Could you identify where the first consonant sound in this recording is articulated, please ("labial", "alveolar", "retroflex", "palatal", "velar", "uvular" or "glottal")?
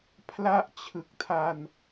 labial